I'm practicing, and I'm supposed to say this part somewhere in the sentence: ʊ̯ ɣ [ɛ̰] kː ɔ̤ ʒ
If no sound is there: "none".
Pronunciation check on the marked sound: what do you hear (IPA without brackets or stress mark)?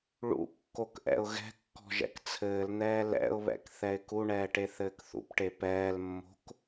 ɛ̤